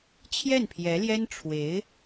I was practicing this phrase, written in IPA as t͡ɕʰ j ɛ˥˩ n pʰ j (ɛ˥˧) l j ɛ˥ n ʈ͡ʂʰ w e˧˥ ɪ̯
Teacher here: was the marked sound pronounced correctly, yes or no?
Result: no